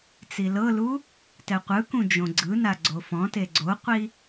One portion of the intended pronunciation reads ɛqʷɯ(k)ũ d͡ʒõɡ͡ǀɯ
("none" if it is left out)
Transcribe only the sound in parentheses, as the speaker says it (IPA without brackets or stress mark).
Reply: k